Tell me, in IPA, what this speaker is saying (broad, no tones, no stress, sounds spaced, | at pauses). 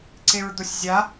ǀ e ɹ d̪ o sʲ zʲ a